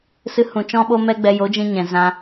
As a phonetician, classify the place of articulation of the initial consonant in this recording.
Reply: alveolar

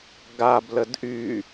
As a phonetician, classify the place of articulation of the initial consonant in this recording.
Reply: velar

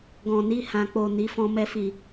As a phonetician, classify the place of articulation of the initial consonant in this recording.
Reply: velar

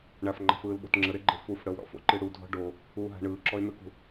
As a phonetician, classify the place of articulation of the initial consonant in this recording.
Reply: retroflex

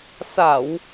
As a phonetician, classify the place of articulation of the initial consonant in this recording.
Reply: alveolar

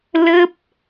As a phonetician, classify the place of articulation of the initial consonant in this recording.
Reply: alveolar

